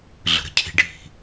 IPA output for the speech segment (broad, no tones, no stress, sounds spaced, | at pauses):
ɮ ə̤ ɾ ə̤ cʰ i̤ ɖʱ i̤